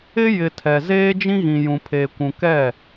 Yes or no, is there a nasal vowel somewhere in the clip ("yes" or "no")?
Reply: yes